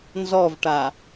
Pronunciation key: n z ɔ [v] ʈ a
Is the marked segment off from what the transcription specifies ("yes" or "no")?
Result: no